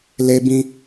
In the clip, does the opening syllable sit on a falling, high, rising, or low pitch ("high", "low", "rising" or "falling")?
low